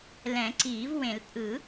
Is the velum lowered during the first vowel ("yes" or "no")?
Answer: yes